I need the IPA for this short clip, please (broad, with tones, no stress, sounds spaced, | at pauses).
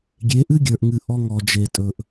ɡʲ e˨˦ ʔ ɨ˦ ɡʲ ə˞˨ ʔ ŋ ɨ˨ ʔ ɔ˧ ŋ ɔ˨ d͡ʒ e˨ tʼ ɵ˨ ʔ